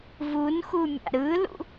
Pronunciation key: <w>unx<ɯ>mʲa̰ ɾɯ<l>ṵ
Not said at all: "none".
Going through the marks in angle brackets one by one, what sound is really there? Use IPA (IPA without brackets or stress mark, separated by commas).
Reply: v, u, l